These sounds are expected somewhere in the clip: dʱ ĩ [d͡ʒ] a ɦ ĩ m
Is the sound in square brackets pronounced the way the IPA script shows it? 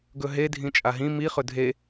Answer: no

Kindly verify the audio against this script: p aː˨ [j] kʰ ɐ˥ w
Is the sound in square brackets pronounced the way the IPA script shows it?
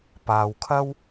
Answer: no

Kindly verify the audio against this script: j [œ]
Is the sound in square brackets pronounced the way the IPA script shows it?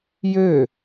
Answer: no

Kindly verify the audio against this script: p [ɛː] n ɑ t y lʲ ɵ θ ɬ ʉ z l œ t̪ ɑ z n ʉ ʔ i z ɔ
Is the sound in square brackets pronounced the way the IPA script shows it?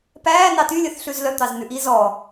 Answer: no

